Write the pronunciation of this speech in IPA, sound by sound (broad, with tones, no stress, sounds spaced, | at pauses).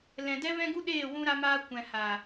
l ɛ̃˨ d ɛ˦ v ɛ̃˦ ɡ u˦ ɗ eː˦˨ w ũ˧ ɾ a˧ m aː˧ kʷ ɛ̃˧ h a˨